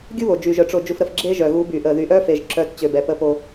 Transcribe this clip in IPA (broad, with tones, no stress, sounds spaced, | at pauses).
ɡʲ u˦ β o˨ d͡ʒ y˨ ʒ œ˨ ʈ͡ʂ o˨ d͡ʒ u˨ f ɾ ə˨ f ɡ͡ǁ e˦ ʒ œ˨ ɣ u˨˦ b y˨ ʔ ə˨ ð y˨ ʔ œ˦ f e˨ ʒ ǁ œ˨˦ t t͡ɕ ø˨ b ɛ˨ p ə˦˨ p o˦